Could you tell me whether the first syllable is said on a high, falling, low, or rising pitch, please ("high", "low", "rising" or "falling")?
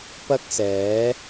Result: high